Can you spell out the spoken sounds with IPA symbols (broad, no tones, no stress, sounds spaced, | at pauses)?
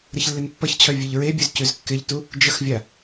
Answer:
ɾ ə ç lː ɪ n pː ʌ ç t͡ɕʰ œ vʲ ʉ ʎ ɹ e bʲ ʉ z c ʉ z kː ɪ ʎ t u | d͡ʒ ə x vʲ a